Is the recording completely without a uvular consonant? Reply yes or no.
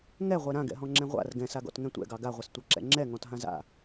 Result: no